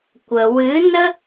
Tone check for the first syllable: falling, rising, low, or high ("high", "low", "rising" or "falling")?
low